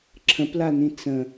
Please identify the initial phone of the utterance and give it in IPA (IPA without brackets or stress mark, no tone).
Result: ǁʰ